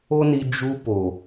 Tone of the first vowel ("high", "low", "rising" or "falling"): high